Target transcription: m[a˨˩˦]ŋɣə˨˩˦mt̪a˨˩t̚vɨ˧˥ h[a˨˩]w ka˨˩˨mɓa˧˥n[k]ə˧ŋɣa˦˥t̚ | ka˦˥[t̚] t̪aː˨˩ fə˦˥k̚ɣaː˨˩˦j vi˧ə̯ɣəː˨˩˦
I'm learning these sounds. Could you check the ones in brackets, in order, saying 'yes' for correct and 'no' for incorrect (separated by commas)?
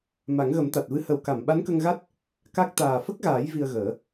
yes, no, yes, no